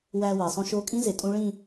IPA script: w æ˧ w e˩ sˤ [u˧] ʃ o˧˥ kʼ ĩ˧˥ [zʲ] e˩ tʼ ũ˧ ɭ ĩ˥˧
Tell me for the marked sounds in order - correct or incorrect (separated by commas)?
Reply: incorrect, incorrect